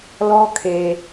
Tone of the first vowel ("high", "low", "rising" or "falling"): high